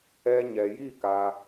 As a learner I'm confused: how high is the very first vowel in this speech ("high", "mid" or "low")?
mid